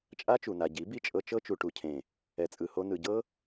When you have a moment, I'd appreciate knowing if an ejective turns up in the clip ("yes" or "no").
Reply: yes